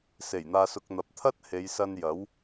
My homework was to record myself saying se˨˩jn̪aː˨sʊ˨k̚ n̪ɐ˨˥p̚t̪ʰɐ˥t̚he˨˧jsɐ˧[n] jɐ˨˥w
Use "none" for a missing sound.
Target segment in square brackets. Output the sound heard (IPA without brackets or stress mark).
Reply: n